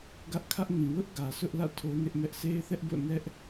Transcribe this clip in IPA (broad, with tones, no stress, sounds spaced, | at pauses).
ɡ ä˦ ʔ kʰ ä˦ ʔ ŋ ĩ˨ w ʊ˦ ʔ ɡ ä˨ sʰ ʊ˦ ʔ l ä̰˦˨ tʰ o˦ n ɪ˦ ʔ m ɛ˦ ʔ sʰ e˦ ɪ̯ θ ɛ˦ ʔ b o̰˦˨ n ɛ˦ ʔ